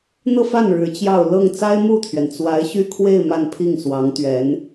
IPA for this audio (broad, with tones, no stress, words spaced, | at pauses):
n̪ɤ˥˧fa˥˩n ɻɻ̩˧˥t͡ɕjɑ˥˧ʊ̯ lɤ˥˩ŋ t͡sa˥ɪ̯mu˥˩t̪ʰɥɛ˩n t͡swa˧˥ɪ̯ɕy˥kʰwe˥˧ɪ̯ ma˥˧npʰi˥˩ŋswɑ˧˥ŋt̪ɥɛ˧˥n